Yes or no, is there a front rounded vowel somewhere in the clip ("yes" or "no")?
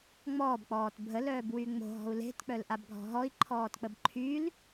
yes